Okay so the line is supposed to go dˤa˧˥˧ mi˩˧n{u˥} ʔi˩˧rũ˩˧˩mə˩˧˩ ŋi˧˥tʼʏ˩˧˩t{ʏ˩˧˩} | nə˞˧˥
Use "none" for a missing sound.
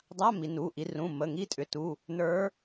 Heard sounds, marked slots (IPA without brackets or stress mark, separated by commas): u˩˧˩, u˩˧˩